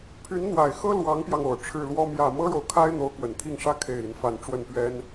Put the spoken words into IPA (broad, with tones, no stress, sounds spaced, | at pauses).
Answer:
pʰ y˧˥ n n̪ w a˨˩ ɪ̯ x ɤ˥ l w ɑ˧˥ ŋ p j ɑ˧ ŋ o˨˩ ʊ̯ ʈ͡ʂʰ ɻ̩˥˩ l w ɔ˥ m j ä˥˩ m ɤ˥ ɻ o˨ ʊ̯ kʰ a˥ ɪ̯ n̪ o˧˥ ʊ̯ k w ə˨˩ n t̪ʰ i˥˩ ŋ ʂ ä˥ kʰ e˥˩ ɪ̯ i˧˥ n f a˥˧ n ʈ͡ʂ w ə˥˩ n p ɥ ɛ˥ n